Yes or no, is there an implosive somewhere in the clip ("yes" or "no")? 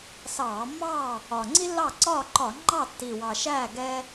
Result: no